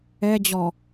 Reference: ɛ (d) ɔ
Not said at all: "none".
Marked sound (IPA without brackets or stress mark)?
d͡ʑ